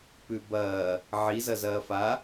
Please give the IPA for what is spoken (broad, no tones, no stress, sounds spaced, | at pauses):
p ʉ b ɐː | ʕ i z ɐ z ɐː f a